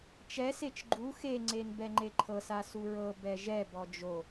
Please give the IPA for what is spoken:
t͡ʃ ɛ s e t͡ʃ ɡ͡ǃ u x e ŋ͡ǀ e n b ɛ ŋ͡ǃ e ǃʰ ɤ s a s u ɹ ɤ b ɛ ʒ ɛ b ɔ d͡ʒ o

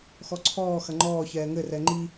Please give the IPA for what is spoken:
x ɔ ǀʰ ɔː x ɐ ŋ͡ǃ ɔː ç ɛː ŋ ɘ r ɛ ŋ͡ǃ i

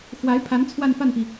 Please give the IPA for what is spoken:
x w a˧˥ ɪ̯ pʰ a˧˥ n t͡sʰ w a˥˧ n f a˥˩ n p i˩

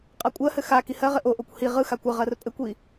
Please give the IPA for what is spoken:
qʼ a kʷʼ ɜ h ɘ x a k i h ɜ ʁ ɘ ʔ o ʔ o kʷ h i ʁ ɯ x a kʷ ɘ ʁ ɜ r pʼ ɘ kʷ i

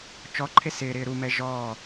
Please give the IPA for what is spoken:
t͡ʃ ɔ ǃʰ e s ɪː ɾ ɪː ɾ u m ɛ ʒ ɔː

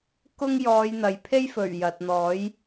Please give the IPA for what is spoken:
k ʊ˥ ŋ j ɔː˨˧ j n̪ ɐ˨ j pʰ e˥ j f ɵ˨˩ ɥ j ɐ˨ t̚ n̪ ɔː˨˥ j

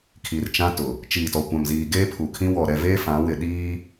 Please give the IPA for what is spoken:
kʰ i˨ r t͡ʃ ã˦ t ʊ˨ | t͡ʃ iː˨ t ɔ˨ kʷ ã˨ m z iː˨ ɡ eː˦ pʰ u˨ kʰ ĩ˦ w ɔ˨ ɾ ɛ˦˨ v eː˦ f ã˨˦ w ɪ˨ ɗ iː˦

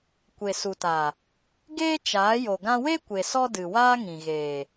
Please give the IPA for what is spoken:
kʷ e˨ s u˨ t a˨ | ɡ eː˦ t͡ʃ aː˨˦ j o˨ ɡ ã˧ w e˦ kʷ e˨ s ɔ˧ d ɨ˨ w aː˦ ŋ ĩ˨ ɣ eː˨

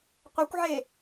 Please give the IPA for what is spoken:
qʷ ɛ kʷ ʕ e

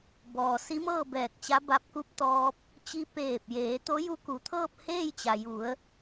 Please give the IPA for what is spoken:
b ɔː˩ s i˧˥ m ɤː˥˨ b ɛː˧˩ k̚ t͡ɕ a˧˥ b a˧ p̚ k u˧˥ p̚ t̪ ɔː˧ p̚ | t͡ɕ i˧ p eː˧˩ p̚ j eː˩˧ t̪ o˧˥ j u˧˥ k u˩ t̪ʰ ɤː˥˨ p̚ h eː˥˨ j t͡ɕ a˩ j u˩˧ ə̯

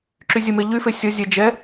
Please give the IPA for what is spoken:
ǁ y zʲ ə m e ʎ y f e sʲ ɔ zʲ ɛ d͡ʒ ɛ

